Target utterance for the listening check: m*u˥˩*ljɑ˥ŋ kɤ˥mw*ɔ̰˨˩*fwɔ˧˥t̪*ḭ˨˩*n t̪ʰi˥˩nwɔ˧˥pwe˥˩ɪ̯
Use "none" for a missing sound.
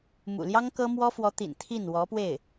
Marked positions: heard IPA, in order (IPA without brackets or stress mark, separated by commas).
ṵ˨˩, ɔ˥, ḭ˨˩